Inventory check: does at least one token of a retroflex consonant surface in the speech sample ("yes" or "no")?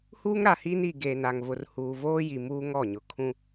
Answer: no